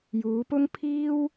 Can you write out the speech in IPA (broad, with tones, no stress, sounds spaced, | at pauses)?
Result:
j uː˨˧ p ʊ˥ ŋ pʰ iː˥ w